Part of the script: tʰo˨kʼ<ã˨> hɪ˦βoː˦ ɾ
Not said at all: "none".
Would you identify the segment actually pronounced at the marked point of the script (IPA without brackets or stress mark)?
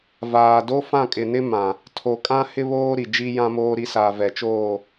ã˦